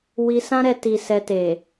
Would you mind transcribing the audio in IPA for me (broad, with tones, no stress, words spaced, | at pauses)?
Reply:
wi˧sã˦ɾɛ˧ ti˧ sɛ˧te˨